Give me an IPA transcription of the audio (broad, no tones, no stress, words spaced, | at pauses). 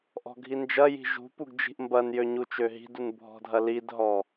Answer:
ʔɔ̤ɡʱind͡ʒɐji̤ ʒṳ puɡd͡ʒi̤ʔmbɐnjø ɲut͡ʃøɦi̤dun bʱɔ̤dʱɐlidɦɔ